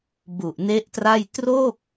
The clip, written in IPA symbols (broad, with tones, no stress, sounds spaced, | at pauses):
b u˨˩ ʔ n e˦˥ ʔ t r a˥˩ j t r o˥˩ k̚